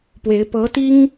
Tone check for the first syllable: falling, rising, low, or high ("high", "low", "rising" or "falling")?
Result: rising